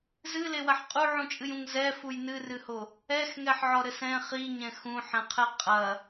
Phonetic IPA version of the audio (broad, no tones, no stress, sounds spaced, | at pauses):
z ɨ l e w ɐ ħ qʼ u ʕ ũ t͡ʃʼ ɨ j ũ ŋ z ɛ f u j n ɨ r ɨ h o | ɛ x ŋ ɛ ħ ʕ ɔ ɾ ɘ s ɛ̃ χ i ɲ ɛ̃ x ũ ħ ɛ̃ qʰ ɛ qʼ ɐ